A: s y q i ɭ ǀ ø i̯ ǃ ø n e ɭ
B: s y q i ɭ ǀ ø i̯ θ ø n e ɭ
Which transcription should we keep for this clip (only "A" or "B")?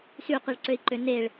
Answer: A